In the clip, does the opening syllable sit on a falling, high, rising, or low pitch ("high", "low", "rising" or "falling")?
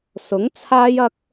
rising